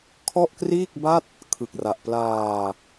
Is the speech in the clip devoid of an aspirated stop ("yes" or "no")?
no